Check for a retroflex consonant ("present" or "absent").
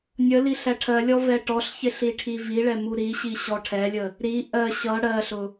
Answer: present